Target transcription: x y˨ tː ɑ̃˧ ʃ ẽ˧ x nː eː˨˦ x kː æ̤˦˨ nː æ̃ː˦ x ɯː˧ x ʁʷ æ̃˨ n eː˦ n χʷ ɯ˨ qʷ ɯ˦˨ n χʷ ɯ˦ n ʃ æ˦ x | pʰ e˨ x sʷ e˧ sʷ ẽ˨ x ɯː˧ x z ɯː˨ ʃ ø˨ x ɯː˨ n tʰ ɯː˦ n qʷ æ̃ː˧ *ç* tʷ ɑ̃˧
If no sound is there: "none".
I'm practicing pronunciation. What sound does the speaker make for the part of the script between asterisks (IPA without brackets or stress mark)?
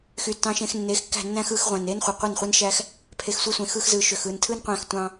x